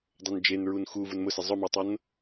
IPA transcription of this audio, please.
dˤ o n d͡ʒ e n ɹ u n x u v u n m ʊ s ɪ zˤ ʊ m a tˤ o n

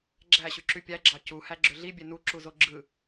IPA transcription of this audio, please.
ɡ͡ǁ æ ɕ y ǁ y pʲ æ ɡ͡ǁ ɑ c u h æ ɡ͡ǁ ø ɮ i bʲ e n u ǁ u z o ɡ͡ǁ ɯ

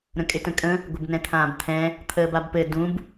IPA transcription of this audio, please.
ɾ ə̃ kʼ ɪ t ə̃ kʼ ə̃ | ɡʷ ɪ b n ɛ̃ t̪ʰ ãː b t̪ʰ ɛ̃ | t̪ʰ əː b a b p ɘ d ũ b

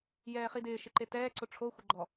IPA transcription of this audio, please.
j ɛː χ i d ɪː ʃ ɪ ǃ e t ɛː ǀ ʊ ʈ͡ʂʰ o xʷ ɪ ɡ͡ǃ ɔ

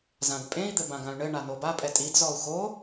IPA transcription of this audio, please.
z ã d pʼ ẽ i̯ d̪ ɘ b ã ɡ ã y̯ ɳ ɘ ɳ a n o b a pʼ ɛ tʼ i d z ɔ u̯ x o

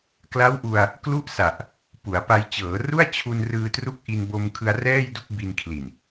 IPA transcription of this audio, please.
k l a˦˥ w ʔ u˧ a̯ | k l u˥˩ ʔ s a˨˩ ʔ | p u˩˦ a̯ p a˧ j t͡ɕ ɤː˩˦ r u˥˩ a̯ t͡ɕʰ u˧ n r ɯː˧ t r u˦˥ k̚ ʔ i˧ n b o˧ m kʰ ɯ˧ a̯ r ɛː˥˩ j d u˥˩ k̚ b i˧ n kʰ l i˨˩ n

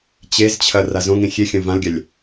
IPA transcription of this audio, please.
t͡ɕ e z t͡ɕʰ ɐ r a z õ ŋ ĩ xʲ e xʲ ɐ̃ v ã l ɡʲ a lʲ

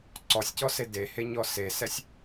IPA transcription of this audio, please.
ǀ ɔ sʲ c ɔ s e d e h e ɲ ɔ s e s ɛ sʲ

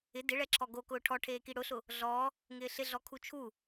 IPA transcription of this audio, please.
ɪ d ɪ ɭ ɛ ǁʰ ɔ ɡ o k ʊː ʈʰ ɔ ʈʰ eː k i ɽ ʊ ɬ ʊ | ɮ ɔː | ŋ ɪː ɬ ɪ ɮ ɔ kʰ u t͡ʃʰ u

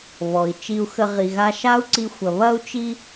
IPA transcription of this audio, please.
β ɔ˩ i̯ t͡ʃ i˧ u̯ x ə˧ ʁ i˩ ɣ a˧ ʃ a˥ u̯ ǀ i˧ xʷ ɐ˩ β ɐ˧ u̯ t͡ʃ i˧

